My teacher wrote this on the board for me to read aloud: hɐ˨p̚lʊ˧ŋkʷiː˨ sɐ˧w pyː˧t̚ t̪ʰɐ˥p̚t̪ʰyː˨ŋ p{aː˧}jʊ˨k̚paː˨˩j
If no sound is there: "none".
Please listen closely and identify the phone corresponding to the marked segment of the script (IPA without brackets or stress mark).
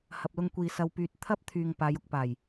aː˨˧